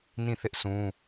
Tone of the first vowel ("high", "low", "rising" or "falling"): falling